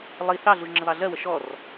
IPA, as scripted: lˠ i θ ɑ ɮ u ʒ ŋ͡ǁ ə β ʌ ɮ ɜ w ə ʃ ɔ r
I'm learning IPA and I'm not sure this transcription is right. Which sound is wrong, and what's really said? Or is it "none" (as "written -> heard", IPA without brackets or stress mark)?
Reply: ʌ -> ɑ